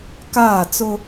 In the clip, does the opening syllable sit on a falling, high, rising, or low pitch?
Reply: falling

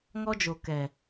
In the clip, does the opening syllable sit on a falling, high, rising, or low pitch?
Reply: high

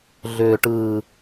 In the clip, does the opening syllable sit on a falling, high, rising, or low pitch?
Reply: low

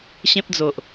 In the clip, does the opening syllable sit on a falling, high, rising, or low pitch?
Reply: high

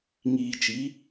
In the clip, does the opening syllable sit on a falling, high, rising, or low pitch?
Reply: low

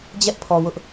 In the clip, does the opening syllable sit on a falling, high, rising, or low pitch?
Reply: high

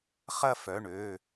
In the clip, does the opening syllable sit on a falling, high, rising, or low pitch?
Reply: falling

